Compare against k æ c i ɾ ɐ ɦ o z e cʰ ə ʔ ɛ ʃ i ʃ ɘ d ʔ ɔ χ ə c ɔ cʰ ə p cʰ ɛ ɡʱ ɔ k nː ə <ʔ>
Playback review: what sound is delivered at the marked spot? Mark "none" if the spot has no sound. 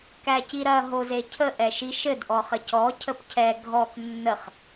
χ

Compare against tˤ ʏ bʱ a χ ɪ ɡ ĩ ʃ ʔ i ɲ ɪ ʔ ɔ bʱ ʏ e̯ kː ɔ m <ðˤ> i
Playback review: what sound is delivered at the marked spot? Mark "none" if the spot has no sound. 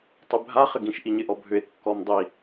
dˤ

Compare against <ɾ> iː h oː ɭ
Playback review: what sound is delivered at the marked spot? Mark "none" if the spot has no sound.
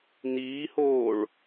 n̪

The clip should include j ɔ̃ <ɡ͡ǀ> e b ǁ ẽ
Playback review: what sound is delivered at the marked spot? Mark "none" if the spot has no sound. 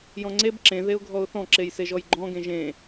ŋ͡ǀ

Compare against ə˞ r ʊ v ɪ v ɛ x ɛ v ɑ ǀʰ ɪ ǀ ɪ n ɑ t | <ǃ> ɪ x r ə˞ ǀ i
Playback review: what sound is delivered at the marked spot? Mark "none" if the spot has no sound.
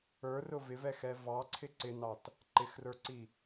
ǃ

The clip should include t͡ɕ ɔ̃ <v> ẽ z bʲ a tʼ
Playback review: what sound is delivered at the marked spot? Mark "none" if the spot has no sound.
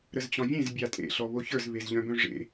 vʲ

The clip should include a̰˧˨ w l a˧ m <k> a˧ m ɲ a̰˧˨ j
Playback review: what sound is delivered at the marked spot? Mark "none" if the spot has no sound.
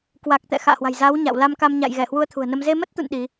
k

